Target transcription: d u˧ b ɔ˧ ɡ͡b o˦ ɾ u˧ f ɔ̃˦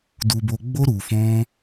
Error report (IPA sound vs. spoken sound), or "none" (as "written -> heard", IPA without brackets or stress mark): ɔ˧ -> o˧